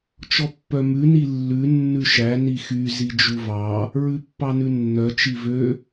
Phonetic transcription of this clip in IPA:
t͡ʃ ɔ pː œ m ʉ n i lː ʉ nː ʉ ʃ æ n i x y z i d͡ʒ u v ɑ | ɹ ʉ pː ɑ n ʉ nː œ t͡ʃ i v ø

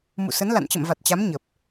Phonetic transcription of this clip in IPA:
m ṵ˧˨ s ə˨˦ n l a̰˧˨ n t͡ɕ ə̰˧˨ m v a˨˩ t̚ t͡ɕ a˨˦ m ɲ ə˨˩ p̚

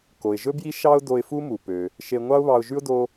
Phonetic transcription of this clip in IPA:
k o˩ ɪ̯ ʒ ɵ˥ b j i˥ ʃ ɑ˥ ʊ̯ d o˧ ɪ̯ f u˥ m u˩ p ø˩ | ʃ e˧ ŋʷ ɑ˥ ʊ̯ β ɑ˧ ʊ̯ ʒ ʉ˥ ʊ̯ d o˥

